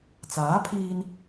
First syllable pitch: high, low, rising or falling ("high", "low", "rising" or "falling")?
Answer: rising